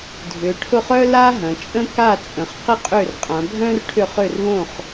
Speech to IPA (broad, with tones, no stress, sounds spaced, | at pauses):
dʱ ʏ˩˧ ʈʰ ʊ˥˩ χ œ˥ l a˥ ɦ ɐ̃˩˧ t͡ʃʼ ə̃˥ k a˥˩ t͡sʼ ə̃˩˧ χ q ɪ˥ qʼ ø˥˩ r qʼ ã˩˧ bʱ œ̃˥ r ʈʰ ʏ˥˩ χ ø˥˩ r β õ˥˩ χ